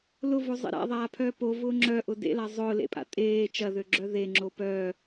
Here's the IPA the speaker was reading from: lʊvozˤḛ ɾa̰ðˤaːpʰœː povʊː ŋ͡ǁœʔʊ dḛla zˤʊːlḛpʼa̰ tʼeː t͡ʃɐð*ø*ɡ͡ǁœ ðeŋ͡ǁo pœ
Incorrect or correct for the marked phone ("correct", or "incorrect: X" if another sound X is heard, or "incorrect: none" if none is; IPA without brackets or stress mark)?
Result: correct